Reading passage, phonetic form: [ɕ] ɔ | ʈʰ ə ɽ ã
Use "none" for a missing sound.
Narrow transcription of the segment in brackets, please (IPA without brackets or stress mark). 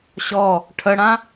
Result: ɕ